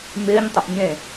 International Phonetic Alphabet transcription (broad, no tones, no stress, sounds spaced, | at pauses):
m ɪː ɲ tˤ ʏ ʔ ɲ ẽ